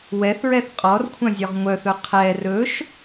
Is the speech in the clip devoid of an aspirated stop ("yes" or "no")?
no